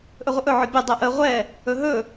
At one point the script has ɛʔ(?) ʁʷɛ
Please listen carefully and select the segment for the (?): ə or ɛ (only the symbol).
ə